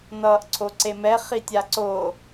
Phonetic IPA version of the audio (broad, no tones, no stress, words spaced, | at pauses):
nʌːʔǀʰoǀemɛ χitʲaǀo